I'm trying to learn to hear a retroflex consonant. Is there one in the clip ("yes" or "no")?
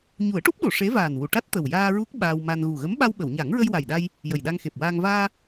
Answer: yes